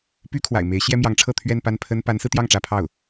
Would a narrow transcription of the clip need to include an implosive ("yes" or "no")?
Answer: no